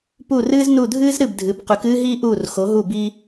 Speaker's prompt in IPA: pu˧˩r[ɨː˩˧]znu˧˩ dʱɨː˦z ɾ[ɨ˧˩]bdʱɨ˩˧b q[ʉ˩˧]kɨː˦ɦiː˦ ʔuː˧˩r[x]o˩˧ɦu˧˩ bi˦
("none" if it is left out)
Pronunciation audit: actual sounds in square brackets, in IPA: ɨː˦, ɨ˧˩, ʉ˩˧, x

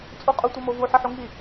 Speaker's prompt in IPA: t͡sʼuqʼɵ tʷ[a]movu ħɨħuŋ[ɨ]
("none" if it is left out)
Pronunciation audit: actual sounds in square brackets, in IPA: ɐ, i

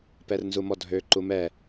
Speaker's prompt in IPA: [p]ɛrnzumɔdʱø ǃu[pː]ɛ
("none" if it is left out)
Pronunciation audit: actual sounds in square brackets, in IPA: p, m

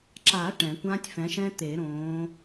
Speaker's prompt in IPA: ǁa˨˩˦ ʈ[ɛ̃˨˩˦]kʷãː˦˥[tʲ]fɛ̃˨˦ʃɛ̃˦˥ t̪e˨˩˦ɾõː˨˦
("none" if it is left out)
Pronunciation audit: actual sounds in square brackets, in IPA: ɛ̃˨˩˦, tʲ

